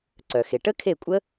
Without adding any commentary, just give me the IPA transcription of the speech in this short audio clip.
ǀ œ˩ x e˩ ʈ ə˦˥ kʰ e˦˨ kʷʼ ə˦˥

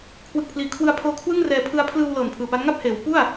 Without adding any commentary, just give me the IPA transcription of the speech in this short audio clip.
kʰ w ɯ˨˩ k̚ pʰ l iː˨˩ kʰ w ɯ˧ a̯ pʰ oː˧ kʰ w ɯ˥˩ ŋ r ɛː˧ pʰ ɯ˧ a̯ pʰ l ɯː˧ w l ɤː˨˩ n pʰ ɯː˨˩ p a˦˥ n ŋ a˥˩ p̚ h eː˩˦ w p u˥˩ a̯

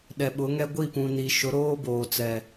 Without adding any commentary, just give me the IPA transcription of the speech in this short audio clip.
ɗ ɛ˨ ɓ ʊ˨˦ ŋ ɛ˦ ɡʷ i˦˨ p ũ˨ n i˨ ʃ ʊ˨˦ ɾ oː˦ b oː˨ t͡s ɛ˨

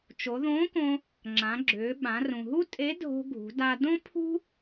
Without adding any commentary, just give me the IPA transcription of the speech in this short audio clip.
t͡ʃ o˩˧ ð õː˧˥ k õ˧ | ŋ͡ǁ ã˩˧ ɡ͡ǁ ʏː˩˧ ɓ ã˩˧ r ũ˩ ɦ u˥ tʼ e˧˥ dʱ o̤˧ ɡʱ ṳ˩˧ d a˧ d õ˥ pʰ ṳ˥

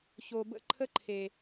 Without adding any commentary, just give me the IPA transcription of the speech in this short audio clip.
ç o˨ b ə̰˦˨ ǃʰ ə˦ ǃʰ e˨

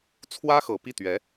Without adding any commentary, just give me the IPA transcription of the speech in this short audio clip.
t͡sʰ w ä˥ x ɤ˨˩ p i˥˩ t̪ ɥ ɛ˧˥

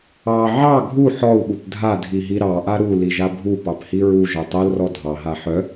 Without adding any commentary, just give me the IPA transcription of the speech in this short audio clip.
ɑ ʕ ɑ ɡʱ u ħ ɔ u̯ ɓ u p dʱ a dʱ i ɦ i ɾ ɑ ʔ a ɾ u l i ʒ a bʱ u p ɑ p h i ɹ u ʒ œ tˤ œ l r ɔ dʱ ɑ ɦ a ħ œ

